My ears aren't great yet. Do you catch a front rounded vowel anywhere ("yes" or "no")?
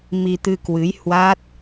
no